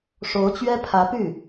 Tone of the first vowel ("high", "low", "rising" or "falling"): rising